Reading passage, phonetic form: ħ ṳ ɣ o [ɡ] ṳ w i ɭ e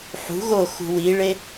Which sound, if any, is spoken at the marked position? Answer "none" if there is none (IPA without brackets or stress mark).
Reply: x